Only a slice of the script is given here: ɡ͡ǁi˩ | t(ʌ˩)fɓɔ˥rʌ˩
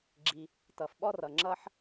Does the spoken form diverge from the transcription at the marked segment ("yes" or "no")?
no